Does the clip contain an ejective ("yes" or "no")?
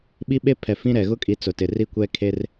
yes